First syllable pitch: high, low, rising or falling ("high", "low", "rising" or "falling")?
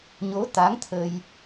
rising